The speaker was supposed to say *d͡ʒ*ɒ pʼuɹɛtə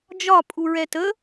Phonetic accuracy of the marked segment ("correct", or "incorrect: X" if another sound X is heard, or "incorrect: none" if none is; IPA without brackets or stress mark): correct